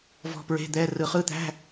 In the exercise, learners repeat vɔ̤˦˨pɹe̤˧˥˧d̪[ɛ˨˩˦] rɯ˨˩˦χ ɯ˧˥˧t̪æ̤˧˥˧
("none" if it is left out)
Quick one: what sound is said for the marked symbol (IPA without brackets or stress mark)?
ɛ˧˥˧